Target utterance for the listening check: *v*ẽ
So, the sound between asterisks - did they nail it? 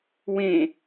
no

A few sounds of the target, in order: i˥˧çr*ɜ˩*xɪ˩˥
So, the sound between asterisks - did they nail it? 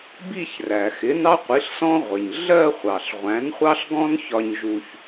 no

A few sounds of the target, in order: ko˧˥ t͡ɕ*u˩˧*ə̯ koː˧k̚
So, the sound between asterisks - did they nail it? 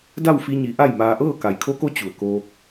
no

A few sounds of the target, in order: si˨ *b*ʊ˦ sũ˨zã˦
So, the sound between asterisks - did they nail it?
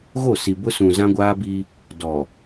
yes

